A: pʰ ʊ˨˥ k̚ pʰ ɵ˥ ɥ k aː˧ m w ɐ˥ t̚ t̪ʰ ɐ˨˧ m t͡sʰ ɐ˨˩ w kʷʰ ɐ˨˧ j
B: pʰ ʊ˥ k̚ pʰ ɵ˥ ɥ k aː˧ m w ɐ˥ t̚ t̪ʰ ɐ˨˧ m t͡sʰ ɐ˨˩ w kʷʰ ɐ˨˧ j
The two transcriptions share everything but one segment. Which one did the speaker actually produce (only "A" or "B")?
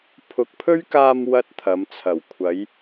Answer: A